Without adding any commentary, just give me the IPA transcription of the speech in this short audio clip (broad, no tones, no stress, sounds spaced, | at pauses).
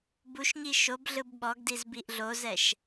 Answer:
b u ʃ ɲ i ʃ o b ɮ ɯ b ɓ ɔ ɡ d i z b i ʔ ɮ o z ɛ ʃ